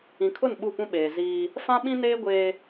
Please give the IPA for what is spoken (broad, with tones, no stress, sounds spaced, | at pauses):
ĩ˨ kʰ ʊ˦˨ n ɓ u˦˨ p ũ˦ ɓ eː˨ z iː˦ | f ã˦ ɓ ĩ˦ n eː˦ ɡʷ eː˦